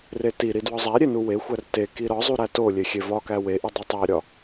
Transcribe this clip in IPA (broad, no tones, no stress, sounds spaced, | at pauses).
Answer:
r e t i ɾ i d w ɒ zˤ æ ɾʲ e n u w e xʷ æ r t e k i ɾ ɒ zˤ u ɾ æ t o lʲ e xʲ e v ɒ k æ w e ʔ i dˤ u tˤ æ ɾʲ ɒ